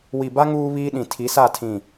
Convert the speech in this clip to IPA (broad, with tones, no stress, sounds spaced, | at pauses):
w i˨ b a˦ ŋ uː˦ β iː˦ ɗ ĩ˨ tʰ i˨˦ s a˦˨ tʰ ĩ˦˨